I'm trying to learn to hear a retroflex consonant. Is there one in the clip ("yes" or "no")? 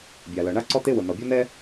yes